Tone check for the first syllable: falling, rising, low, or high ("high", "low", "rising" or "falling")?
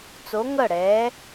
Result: rising